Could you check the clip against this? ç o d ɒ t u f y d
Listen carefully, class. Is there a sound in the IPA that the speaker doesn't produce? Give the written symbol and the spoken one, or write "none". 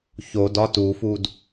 y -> u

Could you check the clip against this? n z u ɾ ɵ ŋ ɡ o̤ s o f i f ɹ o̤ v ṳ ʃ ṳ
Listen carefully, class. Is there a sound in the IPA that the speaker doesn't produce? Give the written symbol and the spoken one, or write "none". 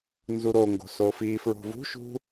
ɵ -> o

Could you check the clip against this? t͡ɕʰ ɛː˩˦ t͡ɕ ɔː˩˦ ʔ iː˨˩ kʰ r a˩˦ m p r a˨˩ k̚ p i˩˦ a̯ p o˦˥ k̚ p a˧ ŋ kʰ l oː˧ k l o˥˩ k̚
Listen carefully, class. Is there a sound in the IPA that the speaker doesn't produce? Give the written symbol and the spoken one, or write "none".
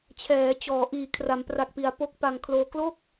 none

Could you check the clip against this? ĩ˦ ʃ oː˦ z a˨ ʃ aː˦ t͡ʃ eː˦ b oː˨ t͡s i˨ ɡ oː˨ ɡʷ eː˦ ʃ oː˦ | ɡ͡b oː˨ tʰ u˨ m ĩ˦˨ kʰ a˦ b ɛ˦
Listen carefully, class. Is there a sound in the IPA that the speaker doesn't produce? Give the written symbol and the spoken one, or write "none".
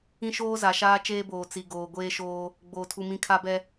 none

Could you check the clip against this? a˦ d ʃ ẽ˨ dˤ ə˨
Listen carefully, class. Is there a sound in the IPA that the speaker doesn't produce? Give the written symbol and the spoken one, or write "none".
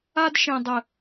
none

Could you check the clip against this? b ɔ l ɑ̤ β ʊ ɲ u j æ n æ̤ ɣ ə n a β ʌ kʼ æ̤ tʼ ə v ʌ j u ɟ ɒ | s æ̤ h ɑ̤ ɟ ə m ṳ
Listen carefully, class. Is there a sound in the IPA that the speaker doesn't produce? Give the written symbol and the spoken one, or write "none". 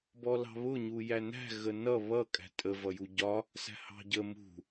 a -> ʌ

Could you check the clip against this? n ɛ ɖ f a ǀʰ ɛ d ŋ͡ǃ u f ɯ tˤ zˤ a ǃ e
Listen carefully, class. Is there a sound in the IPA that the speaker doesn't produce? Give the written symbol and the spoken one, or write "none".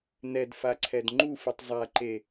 ɖ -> d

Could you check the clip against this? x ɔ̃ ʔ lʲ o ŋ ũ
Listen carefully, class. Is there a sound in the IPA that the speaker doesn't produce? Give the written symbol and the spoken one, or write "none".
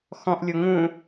none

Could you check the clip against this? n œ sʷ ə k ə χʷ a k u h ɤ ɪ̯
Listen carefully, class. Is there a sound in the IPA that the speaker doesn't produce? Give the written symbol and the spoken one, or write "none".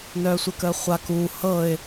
none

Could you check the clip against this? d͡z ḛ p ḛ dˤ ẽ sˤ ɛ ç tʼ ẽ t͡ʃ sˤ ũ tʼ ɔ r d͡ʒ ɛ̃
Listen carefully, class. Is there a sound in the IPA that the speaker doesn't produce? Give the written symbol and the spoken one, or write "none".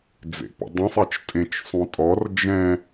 ç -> t͡ʃ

